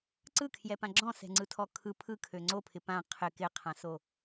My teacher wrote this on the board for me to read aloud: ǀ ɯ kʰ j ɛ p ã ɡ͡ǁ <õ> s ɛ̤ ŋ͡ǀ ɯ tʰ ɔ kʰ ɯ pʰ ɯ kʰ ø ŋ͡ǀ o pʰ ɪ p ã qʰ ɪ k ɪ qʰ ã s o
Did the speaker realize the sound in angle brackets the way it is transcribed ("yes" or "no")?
no